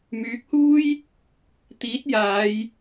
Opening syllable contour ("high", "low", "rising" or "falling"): rising